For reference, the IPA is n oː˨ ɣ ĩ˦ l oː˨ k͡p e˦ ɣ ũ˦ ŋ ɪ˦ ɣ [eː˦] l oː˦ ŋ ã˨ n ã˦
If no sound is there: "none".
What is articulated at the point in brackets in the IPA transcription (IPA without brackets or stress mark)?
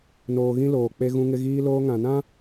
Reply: iː˦